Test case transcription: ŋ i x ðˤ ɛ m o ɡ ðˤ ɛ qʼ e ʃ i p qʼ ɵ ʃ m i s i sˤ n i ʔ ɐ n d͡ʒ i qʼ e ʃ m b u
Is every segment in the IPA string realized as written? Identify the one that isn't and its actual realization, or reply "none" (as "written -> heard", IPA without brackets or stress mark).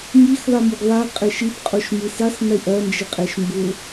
ɵ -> o